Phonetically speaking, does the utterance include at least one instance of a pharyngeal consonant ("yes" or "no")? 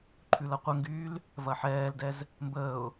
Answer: yes